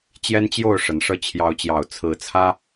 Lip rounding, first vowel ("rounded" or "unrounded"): unrounded